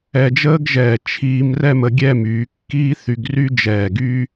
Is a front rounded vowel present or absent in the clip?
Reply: present